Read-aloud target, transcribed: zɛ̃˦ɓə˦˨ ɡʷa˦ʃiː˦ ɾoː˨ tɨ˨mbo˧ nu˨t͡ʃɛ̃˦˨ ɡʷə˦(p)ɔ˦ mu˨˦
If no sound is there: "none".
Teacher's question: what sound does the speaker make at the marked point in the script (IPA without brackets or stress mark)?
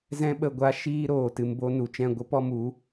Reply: p